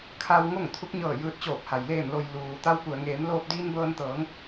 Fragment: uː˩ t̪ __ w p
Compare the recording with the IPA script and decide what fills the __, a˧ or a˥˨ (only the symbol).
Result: a˧